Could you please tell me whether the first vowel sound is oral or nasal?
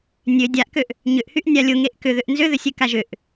oral